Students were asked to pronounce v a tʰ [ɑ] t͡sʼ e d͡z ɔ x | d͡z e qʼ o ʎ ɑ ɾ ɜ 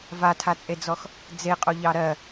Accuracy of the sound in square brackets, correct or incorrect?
incorrect: a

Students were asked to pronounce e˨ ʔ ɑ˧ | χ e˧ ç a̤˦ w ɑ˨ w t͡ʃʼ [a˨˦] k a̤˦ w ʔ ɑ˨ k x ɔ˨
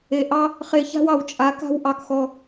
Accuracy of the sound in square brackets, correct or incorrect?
correct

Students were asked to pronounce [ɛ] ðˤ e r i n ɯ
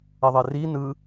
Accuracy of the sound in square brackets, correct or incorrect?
correct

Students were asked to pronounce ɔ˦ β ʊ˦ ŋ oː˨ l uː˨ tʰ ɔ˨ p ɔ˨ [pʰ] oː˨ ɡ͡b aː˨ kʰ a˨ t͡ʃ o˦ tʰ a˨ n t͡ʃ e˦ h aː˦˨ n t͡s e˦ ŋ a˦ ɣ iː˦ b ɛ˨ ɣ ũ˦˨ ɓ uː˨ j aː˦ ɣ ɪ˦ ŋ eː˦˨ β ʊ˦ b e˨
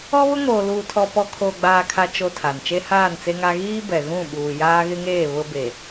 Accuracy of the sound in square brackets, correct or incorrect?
incorrect: kʰ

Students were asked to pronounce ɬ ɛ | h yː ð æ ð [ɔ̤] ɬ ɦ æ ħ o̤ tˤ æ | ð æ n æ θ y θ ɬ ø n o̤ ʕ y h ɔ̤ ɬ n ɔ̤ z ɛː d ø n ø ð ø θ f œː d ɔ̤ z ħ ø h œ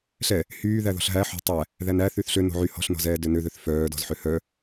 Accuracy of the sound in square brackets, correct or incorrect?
correct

